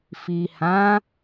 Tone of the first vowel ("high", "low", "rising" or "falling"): low